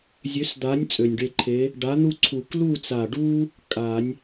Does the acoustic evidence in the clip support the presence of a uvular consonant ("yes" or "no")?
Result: no